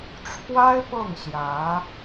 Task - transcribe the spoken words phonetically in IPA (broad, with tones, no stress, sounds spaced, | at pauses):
ʈ͡ʂʰ w a˥ ɪ̯ p ɤ˥˩ ŋ ɕ j ä˧˥